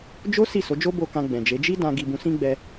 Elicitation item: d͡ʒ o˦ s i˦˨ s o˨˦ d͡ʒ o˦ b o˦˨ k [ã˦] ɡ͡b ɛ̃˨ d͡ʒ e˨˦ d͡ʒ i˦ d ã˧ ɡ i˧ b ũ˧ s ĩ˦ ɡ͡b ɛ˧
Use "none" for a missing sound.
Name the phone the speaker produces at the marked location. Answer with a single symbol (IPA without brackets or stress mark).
ã˧